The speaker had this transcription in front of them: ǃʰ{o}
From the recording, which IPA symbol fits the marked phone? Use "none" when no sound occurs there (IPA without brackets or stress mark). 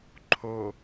o